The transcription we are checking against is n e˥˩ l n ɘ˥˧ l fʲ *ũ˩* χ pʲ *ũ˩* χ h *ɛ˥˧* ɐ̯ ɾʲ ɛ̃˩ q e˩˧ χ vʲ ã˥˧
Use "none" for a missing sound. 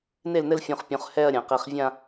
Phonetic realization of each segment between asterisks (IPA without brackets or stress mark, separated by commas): ũ˩˧˩, ũ˩˧, ɛ˥˧